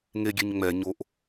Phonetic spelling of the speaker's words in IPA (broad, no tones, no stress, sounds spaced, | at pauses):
ŋ e ɡʲ e ɲ ŋ͡m ɛ ɲ o ʔ